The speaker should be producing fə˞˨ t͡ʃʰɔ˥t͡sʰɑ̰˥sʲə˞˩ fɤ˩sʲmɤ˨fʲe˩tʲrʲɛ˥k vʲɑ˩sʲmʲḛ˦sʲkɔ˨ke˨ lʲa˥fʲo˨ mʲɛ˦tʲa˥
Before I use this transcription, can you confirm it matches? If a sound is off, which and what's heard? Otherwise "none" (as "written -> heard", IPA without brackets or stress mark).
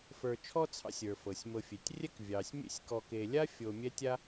none